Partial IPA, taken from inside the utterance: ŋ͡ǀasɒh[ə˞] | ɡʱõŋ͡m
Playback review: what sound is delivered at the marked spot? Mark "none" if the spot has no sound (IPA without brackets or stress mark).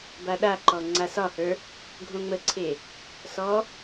ə˞